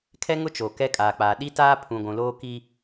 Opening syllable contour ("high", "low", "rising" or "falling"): high